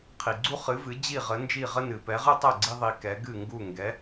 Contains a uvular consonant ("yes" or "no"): yes